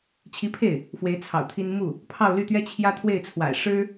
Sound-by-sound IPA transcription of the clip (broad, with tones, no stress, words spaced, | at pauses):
t͡ɕʰi˧˥pʰe˥˩ɪ̯ | fwe˧˥ɪ̯t͡sʰɑ̰˨˩ʊ̯ t̪ʰi˥n mu˥˩ | pʰɑ˥˧ʊ̯ly˥˩t̪ɥɛ˥ t͡ɕʰjä˥t̪ʰwe˥˩ɪ̯t͡sʰwa̰˨˩ɪ̯ ʂɻ̩˥